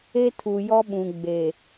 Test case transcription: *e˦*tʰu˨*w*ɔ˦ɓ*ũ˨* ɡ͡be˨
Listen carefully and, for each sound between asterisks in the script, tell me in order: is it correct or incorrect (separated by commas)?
correct, incorrect, correct